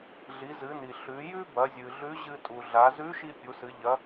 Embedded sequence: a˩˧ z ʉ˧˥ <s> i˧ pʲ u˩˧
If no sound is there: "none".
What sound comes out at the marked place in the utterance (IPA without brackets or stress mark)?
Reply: ʃ